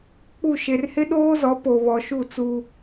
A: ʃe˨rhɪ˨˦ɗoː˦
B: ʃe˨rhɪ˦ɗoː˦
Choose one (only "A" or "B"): B